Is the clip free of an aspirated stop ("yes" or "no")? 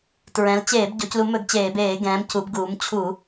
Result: no